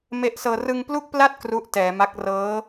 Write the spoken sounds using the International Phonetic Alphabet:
me˦˥ʔsɤː˧ rɯ˧ŋplu˥˩k̚pla˥˩t̚ kru˦˥ʔtɛː˩˦ma˦˥k̚ rɤː˦˥

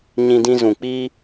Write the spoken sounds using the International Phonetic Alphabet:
ɲĩ˦dĩ˦ zũ˨k͡pi˦

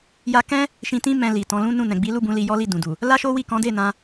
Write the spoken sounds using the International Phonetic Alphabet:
ja˦ kɛ̃˦ | ʃĩ˧tĩ˦ mɛ̃˧ li˨tɔ̃˨˦lũ˦nũ˦˨ nɛ̃˨ɡ͡bi˨˦lu˦˨bũ˨˦ li˧jɔ˦li˦˨ dũ˨du˨ | la˦ʃo˦wi˦˨ kɔ̃˨˦de˦˨nã˧

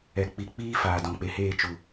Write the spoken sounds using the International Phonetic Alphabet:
ɛ˨k͡pi˨k͡piː˦ faː˨dɔ̃˨k͡pe˨heː˦˨ t͡ʃu˨

